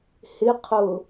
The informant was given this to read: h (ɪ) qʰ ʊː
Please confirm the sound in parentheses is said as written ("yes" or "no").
yes